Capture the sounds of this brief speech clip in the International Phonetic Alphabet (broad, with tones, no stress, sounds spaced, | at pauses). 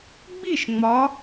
ɡ͡b i˥˨ ʃ ŋ͡m ɒ˨˦